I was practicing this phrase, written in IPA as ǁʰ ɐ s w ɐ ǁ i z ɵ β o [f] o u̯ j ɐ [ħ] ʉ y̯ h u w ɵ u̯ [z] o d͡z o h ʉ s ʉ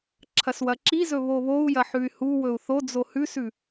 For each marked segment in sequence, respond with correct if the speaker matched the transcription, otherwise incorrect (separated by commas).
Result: incorrect, correct, incorrect